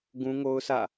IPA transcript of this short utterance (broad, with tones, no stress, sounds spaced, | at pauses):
ɡ ũ˦ ŋ o˦ ʊ̯ sʰ ä̰˦˨